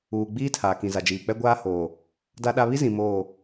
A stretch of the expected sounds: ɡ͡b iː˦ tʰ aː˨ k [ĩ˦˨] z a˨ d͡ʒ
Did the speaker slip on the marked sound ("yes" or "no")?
yes